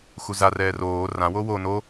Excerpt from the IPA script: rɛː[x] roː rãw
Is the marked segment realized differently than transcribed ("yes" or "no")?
yes